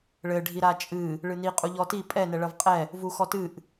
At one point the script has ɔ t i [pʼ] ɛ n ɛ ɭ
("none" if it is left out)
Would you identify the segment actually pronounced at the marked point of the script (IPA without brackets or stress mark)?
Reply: pʼ